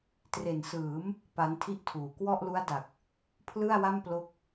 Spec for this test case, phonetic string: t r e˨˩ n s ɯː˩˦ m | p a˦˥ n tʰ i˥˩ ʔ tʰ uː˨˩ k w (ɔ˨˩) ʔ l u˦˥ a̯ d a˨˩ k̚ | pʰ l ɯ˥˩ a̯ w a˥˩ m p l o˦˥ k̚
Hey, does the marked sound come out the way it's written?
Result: no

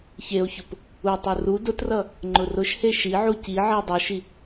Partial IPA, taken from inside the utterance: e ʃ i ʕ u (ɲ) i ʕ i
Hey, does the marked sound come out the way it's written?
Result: no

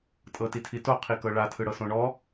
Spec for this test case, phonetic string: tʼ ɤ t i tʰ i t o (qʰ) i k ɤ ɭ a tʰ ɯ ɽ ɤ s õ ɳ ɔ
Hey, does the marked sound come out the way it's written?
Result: yes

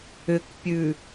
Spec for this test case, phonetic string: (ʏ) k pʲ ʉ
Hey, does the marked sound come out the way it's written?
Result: yes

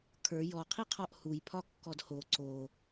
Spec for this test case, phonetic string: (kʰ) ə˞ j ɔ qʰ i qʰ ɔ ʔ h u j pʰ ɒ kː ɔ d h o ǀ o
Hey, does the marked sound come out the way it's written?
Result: yes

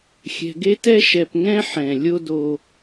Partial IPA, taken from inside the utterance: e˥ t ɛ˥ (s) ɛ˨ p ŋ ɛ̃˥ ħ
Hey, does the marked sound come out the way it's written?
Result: no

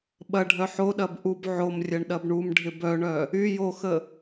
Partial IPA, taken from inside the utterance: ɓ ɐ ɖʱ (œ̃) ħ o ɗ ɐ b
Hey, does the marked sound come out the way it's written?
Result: no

